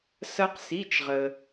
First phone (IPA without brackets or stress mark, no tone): s